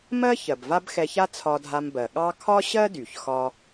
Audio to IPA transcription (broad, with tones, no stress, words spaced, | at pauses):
mɜ˥ çɜ˩bva˥b xɛ˧ça˥ t͡sʰɒ˧dʱa˧mbɜ˩ ɠɑ˥ kʰɒ˥ɕɜ˥dy˩çxɒ˧